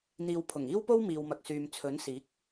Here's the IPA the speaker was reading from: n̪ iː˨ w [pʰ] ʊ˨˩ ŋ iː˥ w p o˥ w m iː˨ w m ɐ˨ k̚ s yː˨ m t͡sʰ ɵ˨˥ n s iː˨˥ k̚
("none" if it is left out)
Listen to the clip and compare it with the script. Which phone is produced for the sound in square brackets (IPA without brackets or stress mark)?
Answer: pʰ